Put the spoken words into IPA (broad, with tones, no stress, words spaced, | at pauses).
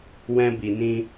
wɛ̃˧bi˨nĩ˧